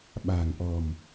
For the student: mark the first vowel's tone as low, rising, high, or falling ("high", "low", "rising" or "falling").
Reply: low